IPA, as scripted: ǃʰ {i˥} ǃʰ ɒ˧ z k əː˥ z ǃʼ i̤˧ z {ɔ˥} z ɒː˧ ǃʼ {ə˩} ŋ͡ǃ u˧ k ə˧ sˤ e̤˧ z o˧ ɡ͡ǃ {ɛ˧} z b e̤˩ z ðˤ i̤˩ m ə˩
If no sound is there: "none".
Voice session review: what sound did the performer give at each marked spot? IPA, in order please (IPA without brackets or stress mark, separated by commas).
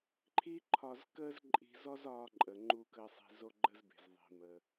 i˥, ɔ˥, ə˩, ə˧